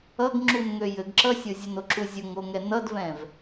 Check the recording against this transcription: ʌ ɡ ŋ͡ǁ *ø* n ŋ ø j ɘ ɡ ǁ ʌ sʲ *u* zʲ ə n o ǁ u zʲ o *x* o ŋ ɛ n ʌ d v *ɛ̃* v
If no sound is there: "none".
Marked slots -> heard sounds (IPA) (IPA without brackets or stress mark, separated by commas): u, o, ŋ, ɛ̃